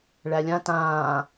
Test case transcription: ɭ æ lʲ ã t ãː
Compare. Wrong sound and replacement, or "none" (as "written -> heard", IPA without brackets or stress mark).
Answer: none